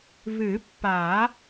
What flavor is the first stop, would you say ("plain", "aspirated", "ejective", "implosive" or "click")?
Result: plain